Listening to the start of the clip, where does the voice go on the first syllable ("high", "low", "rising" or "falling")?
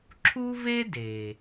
high